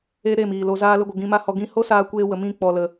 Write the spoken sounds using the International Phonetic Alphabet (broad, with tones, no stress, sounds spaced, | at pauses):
e˧ ɾ e˦˨ m iː˨ l o˨ z aː˧ l ə˧ ɡʷ ə˨ ɡ ĩ˧ m a˦ h ɔ˧ ɡ ĩ˦ h o˦ s aː˧ kʷ eː˧ w ə˨ m ĩ˧ k͡p ɔ˨ l ə˨